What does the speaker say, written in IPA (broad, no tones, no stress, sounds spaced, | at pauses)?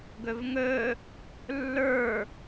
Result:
ɡ ɵ v ŋ ɵ | lː ə˞